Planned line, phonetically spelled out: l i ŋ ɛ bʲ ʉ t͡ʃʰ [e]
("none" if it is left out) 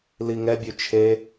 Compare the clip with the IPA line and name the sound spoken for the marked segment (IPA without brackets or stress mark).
e